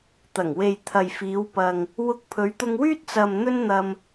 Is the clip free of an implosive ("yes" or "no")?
yes